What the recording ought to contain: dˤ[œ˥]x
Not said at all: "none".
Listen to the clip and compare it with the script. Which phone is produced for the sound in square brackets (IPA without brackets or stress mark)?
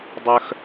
œ˥